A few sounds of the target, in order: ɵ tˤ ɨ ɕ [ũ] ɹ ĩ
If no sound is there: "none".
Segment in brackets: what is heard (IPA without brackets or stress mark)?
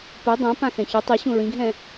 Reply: ũ